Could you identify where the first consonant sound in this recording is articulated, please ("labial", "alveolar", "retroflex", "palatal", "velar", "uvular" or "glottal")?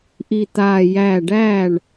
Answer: glottal